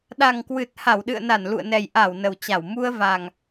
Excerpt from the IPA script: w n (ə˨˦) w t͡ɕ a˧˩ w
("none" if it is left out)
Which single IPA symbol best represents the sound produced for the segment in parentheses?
ə˨˩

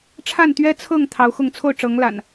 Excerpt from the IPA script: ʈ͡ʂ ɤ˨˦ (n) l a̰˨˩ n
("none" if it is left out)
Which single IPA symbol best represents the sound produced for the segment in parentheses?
ŋ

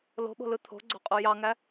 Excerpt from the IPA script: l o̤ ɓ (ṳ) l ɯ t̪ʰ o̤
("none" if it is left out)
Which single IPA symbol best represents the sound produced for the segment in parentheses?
o̤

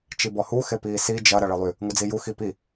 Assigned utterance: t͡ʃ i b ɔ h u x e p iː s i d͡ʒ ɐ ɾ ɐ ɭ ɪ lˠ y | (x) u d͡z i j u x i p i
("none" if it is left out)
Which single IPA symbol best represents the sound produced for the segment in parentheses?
ŋ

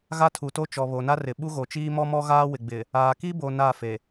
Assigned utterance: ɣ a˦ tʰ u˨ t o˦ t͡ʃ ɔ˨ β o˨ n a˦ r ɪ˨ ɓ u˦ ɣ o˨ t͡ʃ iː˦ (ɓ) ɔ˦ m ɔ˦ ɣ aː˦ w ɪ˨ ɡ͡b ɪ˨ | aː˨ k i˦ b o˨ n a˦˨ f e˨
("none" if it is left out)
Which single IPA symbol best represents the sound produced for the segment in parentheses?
m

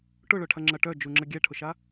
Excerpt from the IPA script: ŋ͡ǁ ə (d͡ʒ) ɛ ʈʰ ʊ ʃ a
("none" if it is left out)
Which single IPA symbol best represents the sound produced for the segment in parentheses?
ɡʲ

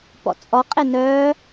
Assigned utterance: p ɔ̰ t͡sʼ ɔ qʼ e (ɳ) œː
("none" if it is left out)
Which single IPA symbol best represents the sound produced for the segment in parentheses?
n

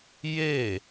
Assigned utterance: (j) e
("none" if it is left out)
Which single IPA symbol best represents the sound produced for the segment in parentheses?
j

